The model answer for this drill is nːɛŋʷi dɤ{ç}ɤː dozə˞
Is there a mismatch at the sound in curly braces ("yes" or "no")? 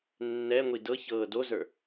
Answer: no